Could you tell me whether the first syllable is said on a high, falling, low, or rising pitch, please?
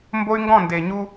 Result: high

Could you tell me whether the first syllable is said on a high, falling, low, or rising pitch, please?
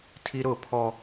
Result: high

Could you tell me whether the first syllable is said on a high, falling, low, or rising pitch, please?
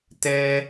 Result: high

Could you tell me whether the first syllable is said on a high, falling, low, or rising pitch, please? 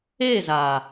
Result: falling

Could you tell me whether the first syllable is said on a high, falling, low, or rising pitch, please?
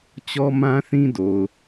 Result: high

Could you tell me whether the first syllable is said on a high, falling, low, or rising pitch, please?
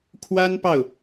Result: high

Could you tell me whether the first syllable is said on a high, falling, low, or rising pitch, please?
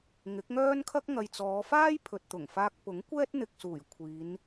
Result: rising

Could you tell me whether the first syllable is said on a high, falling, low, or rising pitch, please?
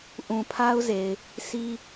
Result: low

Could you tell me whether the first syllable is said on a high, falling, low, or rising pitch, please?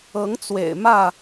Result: rising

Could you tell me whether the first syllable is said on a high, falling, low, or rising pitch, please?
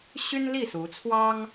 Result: high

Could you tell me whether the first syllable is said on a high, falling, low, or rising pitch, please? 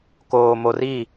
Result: low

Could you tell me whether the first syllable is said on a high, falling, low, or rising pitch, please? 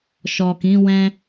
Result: low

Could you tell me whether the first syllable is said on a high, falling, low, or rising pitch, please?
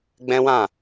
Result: high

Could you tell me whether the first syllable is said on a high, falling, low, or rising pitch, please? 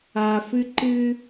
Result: low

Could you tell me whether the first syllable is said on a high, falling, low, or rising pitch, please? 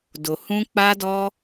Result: low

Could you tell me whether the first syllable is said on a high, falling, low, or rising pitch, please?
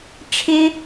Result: high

